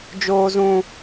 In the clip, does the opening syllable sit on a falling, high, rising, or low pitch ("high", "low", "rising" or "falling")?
high